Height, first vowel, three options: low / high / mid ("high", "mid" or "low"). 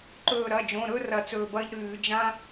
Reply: mid